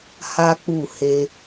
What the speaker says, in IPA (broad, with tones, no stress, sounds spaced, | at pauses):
h a˦ k͡p u˦˨ h e˧